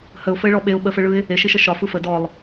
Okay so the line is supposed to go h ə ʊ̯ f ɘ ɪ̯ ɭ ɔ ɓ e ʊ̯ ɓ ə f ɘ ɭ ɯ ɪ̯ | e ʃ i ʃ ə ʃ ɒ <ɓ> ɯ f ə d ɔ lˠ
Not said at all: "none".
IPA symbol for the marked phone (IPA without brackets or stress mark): f